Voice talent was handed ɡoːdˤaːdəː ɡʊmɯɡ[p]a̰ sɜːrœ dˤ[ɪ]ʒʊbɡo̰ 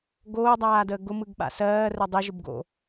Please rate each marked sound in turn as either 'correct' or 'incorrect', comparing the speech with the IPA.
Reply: incorrect: ɓ, incorrect: i

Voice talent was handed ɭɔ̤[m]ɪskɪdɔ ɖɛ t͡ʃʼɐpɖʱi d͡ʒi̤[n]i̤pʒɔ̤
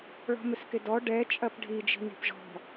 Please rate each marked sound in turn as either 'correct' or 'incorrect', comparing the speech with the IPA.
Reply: correct, correct

